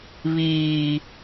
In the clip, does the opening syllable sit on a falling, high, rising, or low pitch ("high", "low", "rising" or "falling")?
low